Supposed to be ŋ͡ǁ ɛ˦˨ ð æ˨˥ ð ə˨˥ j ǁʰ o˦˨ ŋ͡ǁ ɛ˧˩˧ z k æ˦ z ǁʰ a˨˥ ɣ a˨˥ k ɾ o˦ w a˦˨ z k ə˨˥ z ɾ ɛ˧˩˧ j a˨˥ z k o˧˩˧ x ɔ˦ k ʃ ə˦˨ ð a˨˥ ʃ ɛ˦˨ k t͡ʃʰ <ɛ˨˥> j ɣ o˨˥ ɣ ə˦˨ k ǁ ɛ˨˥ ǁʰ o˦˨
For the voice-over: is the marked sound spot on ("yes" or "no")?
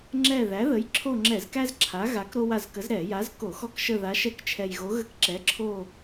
no